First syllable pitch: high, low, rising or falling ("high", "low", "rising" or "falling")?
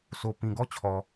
low